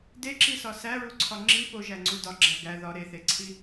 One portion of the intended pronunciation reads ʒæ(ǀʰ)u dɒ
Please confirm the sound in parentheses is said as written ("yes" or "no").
no